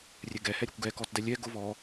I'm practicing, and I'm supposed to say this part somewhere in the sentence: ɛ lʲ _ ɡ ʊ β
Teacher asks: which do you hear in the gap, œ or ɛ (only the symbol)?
ɛ